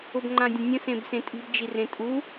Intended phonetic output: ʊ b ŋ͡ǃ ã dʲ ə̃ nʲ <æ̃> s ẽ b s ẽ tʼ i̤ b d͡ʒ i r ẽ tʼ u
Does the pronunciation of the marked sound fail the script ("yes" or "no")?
yes